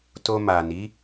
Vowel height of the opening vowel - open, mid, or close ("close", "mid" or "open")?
mid